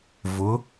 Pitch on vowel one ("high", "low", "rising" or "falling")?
rising